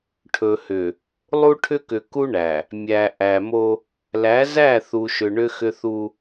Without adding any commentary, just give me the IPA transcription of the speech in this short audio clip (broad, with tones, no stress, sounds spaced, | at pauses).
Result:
ʈʰ ɵ˨ h ʏ˨ | lˠ u˦ ʈʰ ʏ˦ k ʏ˨ k u˦ ɳ æ˨ | mʲ æ˨ ʔ æ˨ m o˦ | l æ˨˦ z æ˦˨ θ u˨ ʃ ʏ˨ ɳ ʏ˦ x ʏ˦ θ u˦